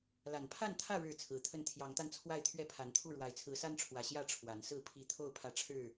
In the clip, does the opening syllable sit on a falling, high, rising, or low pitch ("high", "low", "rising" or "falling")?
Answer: low